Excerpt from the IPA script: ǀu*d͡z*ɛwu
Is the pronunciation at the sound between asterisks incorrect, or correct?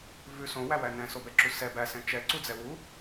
correct